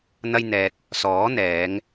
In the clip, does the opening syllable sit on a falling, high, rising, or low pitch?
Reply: high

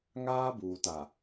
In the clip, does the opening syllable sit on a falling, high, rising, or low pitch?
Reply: high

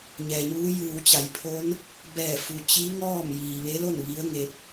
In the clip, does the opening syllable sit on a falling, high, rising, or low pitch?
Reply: low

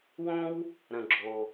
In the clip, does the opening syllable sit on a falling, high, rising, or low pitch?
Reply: high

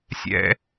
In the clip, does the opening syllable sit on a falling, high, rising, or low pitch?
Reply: high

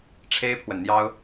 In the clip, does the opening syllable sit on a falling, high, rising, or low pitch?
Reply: high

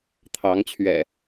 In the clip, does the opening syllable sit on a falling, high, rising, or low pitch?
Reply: rising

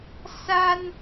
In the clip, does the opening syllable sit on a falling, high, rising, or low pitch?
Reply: high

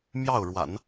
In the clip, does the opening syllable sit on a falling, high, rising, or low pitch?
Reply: falling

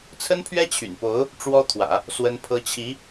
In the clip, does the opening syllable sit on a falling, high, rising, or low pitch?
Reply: high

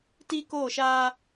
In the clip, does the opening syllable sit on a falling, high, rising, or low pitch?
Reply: high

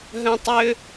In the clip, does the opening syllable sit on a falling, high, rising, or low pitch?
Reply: high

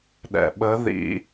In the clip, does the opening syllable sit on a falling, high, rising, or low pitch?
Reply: low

